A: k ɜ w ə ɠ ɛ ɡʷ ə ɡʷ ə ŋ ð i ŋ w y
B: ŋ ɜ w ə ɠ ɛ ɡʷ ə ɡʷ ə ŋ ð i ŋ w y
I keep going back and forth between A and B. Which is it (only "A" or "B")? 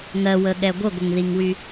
B